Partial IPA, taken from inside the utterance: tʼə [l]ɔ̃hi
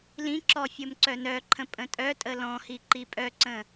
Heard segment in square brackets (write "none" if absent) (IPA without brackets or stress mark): l